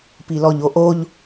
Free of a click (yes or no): yes